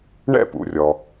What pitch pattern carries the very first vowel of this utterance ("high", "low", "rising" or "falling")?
falling